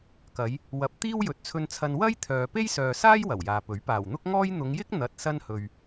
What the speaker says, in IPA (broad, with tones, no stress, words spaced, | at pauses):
kɐ˨˧j | wɐ˨p̚ t̪iː˥wjɵ˨t̚t͡sʰɵ˧nt͡sʰɐ˧n wɐ˥j t̪ʰœː˨ pe˥jsœː˨saː˥j wɐ˨˩wjaː˨pɵ˨˥ɥ paː˨˩wn̪ʊ˥k̚ŋɔː˥j n̪ʊ˨˧ŋjɪ˥k̚ n̪ɐ˨t̚ sɐ˧nhɵ˨ɥ